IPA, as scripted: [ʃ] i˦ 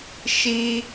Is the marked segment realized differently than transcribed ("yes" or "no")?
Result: no